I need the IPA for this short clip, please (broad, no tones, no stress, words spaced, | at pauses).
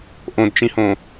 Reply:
ʔõdt͡ʃĩhõ